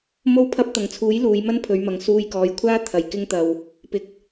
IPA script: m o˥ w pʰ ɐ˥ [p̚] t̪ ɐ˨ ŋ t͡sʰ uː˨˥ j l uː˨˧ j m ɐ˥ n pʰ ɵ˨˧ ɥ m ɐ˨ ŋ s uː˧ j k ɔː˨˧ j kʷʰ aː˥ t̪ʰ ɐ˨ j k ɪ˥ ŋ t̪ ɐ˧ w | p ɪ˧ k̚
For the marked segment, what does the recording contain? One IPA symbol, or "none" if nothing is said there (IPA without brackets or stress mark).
p̚